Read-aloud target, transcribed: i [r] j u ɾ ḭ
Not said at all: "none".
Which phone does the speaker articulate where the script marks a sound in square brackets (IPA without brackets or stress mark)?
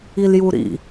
l